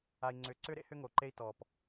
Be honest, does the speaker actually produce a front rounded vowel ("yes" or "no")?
yes